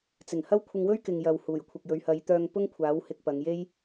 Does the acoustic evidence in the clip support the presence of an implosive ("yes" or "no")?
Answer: no